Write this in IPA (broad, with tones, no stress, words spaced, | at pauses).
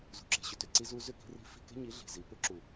zṳ˨ǁe̤˨ɕʏ˨tʏ˨ ǀi˧zu˧ zʏ˦˨ki̤˧ ri̤˧fi̤˦˨ke̤˦ ɲi˨˦ɮi̤˨zi˨ pʏ˦ǁu˨